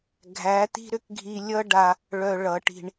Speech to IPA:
ɡʱ æ˨˦ t̪ i̤˦ ɾ ʏ˦ k ɡʱ i˧ lʲ ʌ˦ ɖ a˧ | ɭ œ˧ ɭ ʌ˨˦ ʈ i̤˧ ɳ

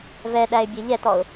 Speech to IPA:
v ɛ ɗ æ ɪ̯ bʲ e ʎ ɛ t ɔ ʊ̯

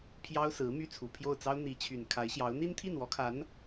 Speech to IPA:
pʰ j ɑ˥ ʊ̯ s ɹ̩˧˥ m y˥ t͡sʰ u˨˩ pʰ j o˥˩ ʊ̯ t͡s ɑ˥ ʊ̯ n̪ i˧˥ t͡ɕʰ y˨˩ n kʰ a˧˥ ɪ̯ ɕ j ɑ˧˥ ʊ̯ n̪ i˥ n t̪ʰ i˥˩ n w ɔ˧˥ kʰ a˧˥ n

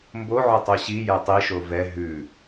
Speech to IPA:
m b o ʕ ɵ tˤ o ɕ i j ɛ tˤ i ʃ o v ɛ ɦ ʉ

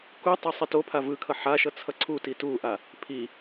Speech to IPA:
k u tˤ ɛ sˤ i t o pʰ a v ɯ kʰ ʌ ħ a ʃ ʌ t͡sʰ ʌ ǀʰ u t i t u ʔ a | pʰ i

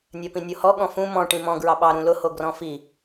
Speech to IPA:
nʲ ɜ p ĩ nʲ o h ɔ ɠ ɔ̃ f ũ m ɔ̃ ʈ ĩ m ɔ̃ ɡ ɹ ɑ ɓ ɑ ɾ ũ l ʊ h o ɡ r ɔ̃ f i

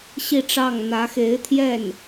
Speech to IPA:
ɕ i˥˧ ʈ͡ʂ ɑ˥˩ ŋ n̪ ä˧˥ x e˧˥ ɪ̯ t̪ʰ j ɛ˥˩ n

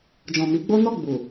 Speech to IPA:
d͡ʒ ɔ̃˨ m i˨˦ ɡ͡b o˦ n ɔ˦˨ ɡ͡b u˨

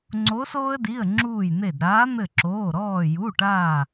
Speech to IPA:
ŋ͡ǀ o˨˦ s oː˦ ə̯ d i˩˧˩ ə̯ ŋ͡ǁ uː˧˩ j n̪ e˧˩ d ɾ aː˨˦ n̪ ɘ˧˩ ǁ oː˩˧˩ ɾ ɔː˧˩ j u˩˧˩ ʈ aː˧˩

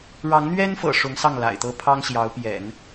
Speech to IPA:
ɻ ɑ˧˥ ŋ n̪ ɥ ɛ˥ n f ɤ̰˨˩ ʂ ʊ˧˥ ŋ s ɑ˥˩ ŋ l a̰˨˩ ɪ̯ t̪ ɤ˥ pʰ ɑ˥ ŋ ɕ j ɑ˧˥ ʊ̯ p j ɛ̰˨˩˦ n

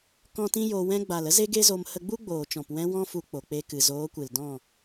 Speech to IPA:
k ɔ̃˦ t ĩ˦ j o˧ w ɛ̃˧ ɡ͡b a˨ l ə˦ z e˦ ɡ e˦ z o˧ m h ə˧ ɡ͡b u˦ ɡ͡b oː˨ t͡ʃ ɔ̃˨ p w ɛ̃˧ w ɔ̃˦ f u˧ k͡p o˨ k͡p e˧ k ɨ˨ z oː˨˦ kʷ ɨ˨ l d ɔ̃˦˨

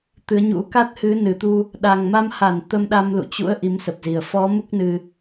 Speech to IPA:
t̪ ɨ˨˦ ə̯ ɲ ṵ˧˥ k a˦˥ t̚ h ɨ˨˦ n ɨ˨˩ t̪ u˧ | ɗ a˨˩ ŋ m a˧ m h a˧˩ n t̪ ə˧ m ɗ a˧ m l ṵ˧˨ t͡ɕ ṵ˧˥ ə̯ ʔ i˨˦ m s ə˨˩ p̚ z i˨˩ ə̯ f ɔ˨˦ m u˦˥ k̚ n ɨ˧

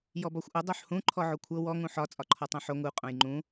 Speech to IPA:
j ɔ b ɒ xʷ ʔ ʊ dˤ o ħ h ũ ǃʰ ɔ ʕ o kʷʰ ɤ w ɔ ŋ ũ ħ ɒ t͡sʼ ɒ ǃʰ ɔ tˤ õ ħ o ŋ u qʼ õ j ŋ͡ǃ ũ

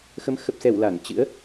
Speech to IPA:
x ə˨˦ m x ə˨˩ p̚ s ɛ˧˩ w l a˧˩ n t͡ɕ ɨ̰˧˥ ə̯

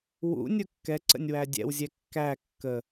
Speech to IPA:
w ṵ nʲ ʊ kː ɛ ǀ ə̰ nʲ w æ dʲ ɛ̰ w zʲ ɛ kː æ kː ə

